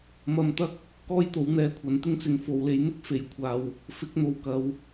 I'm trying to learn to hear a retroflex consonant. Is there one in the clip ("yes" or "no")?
no